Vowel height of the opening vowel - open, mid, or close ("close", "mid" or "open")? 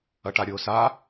open